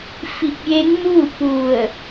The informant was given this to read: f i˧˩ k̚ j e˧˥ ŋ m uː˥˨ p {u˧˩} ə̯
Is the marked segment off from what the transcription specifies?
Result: no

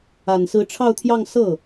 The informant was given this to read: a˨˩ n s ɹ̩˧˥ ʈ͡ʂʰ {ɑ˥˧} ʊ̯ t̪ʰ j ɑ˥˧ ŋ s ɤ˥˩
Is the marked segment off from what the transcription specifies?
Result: no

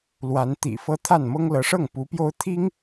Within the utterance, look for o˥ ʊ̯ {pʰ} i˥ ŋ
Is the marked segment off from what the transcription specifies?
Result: yes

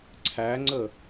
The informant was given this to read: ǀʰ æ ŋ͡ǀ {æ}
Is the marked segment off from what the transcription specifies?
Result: yes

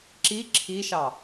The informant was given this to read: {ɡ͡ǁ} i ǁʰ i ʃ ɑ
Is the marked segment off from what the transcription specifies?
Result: yes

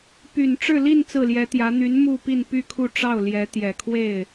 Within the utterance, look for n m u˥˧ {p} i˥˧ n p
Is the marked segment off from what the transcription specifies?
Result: no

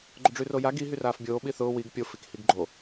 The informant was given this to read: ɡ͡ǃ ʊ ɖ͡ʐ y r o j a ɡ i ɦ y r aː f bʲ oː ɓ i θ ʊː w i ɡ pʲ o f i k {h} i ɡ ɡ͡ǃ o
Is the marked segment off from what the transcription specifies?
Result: no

